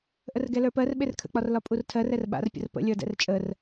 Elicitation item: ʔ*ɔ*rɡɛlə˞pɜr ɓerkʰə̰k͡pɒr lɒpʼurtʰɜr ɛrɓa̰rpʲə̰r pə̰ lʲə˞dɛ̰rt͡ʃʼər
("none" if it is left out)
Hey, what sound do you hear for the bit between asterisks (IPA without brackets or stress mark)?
ə